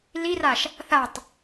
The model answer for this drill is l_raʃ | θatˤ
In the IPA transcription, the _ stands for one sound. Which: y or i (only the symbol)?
i